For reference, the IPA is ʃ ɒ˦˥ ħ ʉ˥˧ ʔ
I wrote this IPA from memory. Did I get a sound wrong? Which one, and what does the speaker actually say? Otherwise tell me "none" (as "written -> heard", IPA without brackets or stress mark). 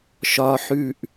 none